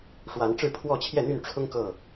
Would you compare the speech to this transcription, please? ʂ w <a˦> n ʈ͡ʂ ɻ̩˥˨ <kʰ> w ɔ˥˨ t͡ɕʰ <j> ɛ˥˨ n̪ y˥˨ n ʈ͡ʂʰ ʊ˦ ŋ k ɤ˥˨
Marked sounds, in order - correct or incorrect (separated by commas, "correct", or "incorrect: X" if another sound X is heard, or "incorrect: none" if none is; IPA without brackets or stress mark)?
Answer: incorrect: a˨˦, incorrect: pʰ, correct